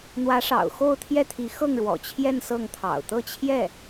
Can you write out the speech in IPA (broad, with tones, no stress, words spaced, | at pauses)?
n̪wä˧˥ʂɑ̰˨˩ʊ̯xo˥˧ʊ̯ t̪ʰjɛ˥˩t̪ʰi˧˥ xɤ˥˩ŋɻwɔ̰˨˩t͡ɕʰjɛ˥˧n sɤ˥˩ŋt̪ʰɑ̰˨˩ʊ̯ t̪ɤ˥˧t͡ɕʰjɛ˥˩